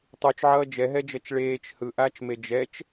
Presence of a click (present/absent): absent